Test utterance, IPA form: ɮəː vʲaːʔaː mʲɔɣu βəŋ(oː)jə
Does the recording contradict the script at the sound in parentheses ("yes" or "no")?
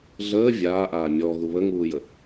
yes